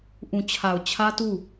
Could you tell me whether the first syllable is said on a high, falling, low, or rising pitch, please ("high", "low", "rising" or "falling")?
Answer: low